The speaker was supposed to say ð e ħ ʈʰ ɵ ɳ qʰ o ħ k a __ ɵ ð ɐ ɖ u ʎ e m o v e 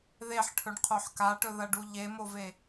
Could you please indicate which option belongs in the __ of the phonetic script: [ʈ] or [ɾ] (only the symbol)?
ʈ